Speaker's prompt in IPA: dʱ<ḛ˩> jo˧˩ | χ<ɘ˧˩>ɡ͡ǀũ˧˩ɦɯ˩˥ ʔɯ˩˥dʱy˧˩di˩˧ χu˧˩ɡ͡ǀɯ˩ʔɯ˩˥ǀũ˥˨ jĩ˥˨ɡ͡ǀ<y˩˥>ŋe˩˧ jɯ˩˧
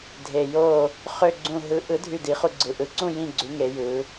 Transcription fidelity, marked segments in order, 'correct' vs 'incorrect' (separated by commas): incorrect, incorrect, correct